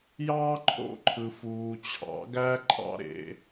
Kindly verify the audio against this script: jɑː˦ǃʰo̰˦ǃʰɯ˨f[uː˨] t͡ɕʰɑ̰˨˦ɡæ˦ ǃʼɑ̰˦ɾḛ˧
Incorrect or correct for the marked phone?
correct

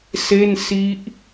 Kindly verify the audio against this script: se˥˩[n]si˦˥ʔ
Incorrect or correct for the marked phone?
correct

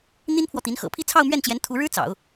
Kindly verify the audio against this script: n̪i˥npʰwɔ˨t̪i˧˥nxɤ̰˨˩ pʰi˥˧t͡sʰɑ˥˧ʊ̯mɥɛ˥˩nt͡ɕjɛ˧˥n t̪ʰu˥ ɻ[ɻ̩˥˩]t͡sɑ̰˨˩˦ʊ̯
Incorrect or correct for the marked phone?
incorrect: ɻ̩˥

